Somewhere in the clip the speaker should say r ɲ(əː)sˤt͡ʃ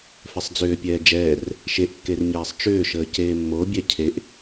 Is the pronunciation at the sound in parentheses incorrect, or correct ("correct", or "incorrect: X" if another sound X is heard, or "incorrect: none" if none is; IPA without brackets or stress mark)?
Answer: incorrect: ɛː